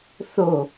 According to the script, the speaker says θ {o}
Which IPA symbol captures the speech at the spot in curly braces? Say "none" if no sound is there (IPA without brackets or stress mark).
o